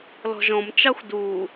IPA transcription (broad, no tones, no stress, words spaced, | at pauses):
lɔ̤ʒɔ̃m t͡ʃɑxʷduː